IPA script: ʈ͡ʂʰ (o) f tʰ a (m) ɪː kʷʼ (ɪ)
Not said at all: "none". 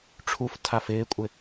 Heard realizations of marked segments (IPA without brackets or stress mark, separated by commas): u, f, ɪ